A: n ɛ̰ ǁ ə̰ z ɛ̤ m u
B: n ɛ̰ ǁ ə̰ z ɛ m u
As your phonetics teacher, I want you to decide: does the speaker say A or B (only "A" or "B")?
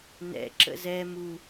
B